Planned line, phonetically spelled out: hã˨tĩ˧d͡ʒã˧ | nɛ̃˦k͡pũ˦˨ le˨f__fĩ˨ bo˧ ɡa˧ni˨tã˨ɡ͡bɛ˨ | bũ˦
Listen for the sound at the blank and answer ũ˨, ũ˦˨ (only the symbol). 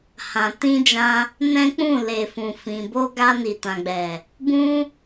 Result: ũ˨